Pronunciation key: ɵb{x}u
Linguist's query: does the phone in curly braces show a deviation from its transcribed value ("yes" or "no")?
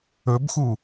no